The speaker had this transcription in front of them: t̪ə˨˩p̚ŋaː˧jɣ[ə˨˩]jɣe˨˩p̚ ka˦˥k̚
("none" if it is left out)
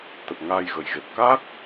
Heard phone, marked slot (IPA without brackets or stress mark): ə˨˩